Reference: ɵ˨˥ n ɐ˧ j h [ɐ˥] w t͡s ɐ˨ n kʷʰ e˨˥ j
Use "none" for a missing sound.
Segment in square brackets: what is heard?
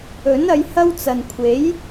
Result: ɐ˥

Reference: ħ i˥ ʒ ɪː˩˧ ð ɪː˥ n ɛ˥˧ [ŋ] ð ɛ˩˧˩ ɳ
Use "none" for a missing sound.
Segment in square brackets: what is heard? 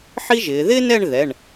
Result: ɳ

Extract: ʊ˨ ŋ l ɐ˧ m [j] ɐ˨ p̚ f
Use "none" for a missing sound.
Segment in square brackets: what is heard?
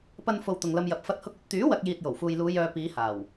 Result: j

